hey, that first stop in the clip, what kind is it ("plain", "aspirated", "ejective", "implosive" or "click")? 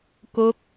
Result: plain